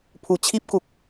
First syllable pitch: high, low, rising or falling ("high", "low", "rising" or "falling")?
low